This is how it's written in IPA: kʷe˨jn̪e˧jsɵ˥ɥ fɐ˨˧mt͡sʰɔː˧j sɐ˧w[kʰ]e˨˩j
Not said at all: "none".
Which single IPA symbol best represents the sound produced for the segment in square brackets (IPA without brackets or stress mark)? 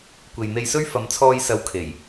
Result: kʰ